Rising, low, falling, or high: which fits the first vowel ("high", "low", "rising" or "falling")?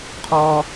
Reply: high